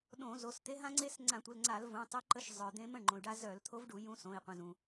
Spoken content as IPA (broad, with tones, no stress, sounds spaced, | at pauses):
ɗ õ˧˩˧ z o˩˧˩ s t̪ e˧˥ ɦ ã˥ ŋ͡ǀ e˥ s ŋ͡ǀ ã˧˩˧ tʷ ə˩˧˩ l ŋ͡ǀ a˧˩˧ l v ũ˩˧˩ tˤ i˧˥ ǃ ə˧˥ ʃ zˤ œ˩ d̪ ẽ˧˥ m ə̃˩˧˩ ɳ ŋ͡ǃ õ˩ y̯ ɖ a˥ z œ˧˩˧ l t̪ʰ o˧˥ v ɖ u˧˩˧ j ũ˧˥ s õ˩˧˩ i̯ qʷ ə̃˩˧˩ z ũ˩